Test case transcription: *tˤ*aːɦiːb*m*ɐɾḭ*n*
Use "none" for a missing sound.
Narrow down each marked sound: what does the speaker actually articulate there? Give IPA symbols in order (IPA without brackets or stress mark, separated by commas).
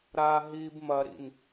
ɾ, m, n